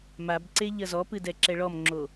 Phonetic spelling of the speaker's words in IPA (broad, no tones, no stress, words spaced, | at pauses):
mabǀe ʎɐzɔpɨ dɛǁɛɭɔmŋ͡ǁo